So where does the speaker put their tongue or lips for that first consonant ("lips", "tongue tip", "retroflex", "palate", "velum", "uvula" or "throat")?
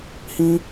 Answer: throat